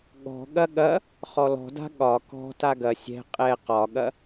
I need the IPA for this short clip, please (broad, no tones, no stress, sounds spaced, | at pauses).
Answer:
ɠ ɔ̤ ɠ ɐ ɠ ɐ | χ ɔ l ɔ̤ d a̤ ɠ ɒ k ɔ̤ t a ɡ ɐ sʲ ɛ̤ qʼ ɛ q ɒ ɠ ɐ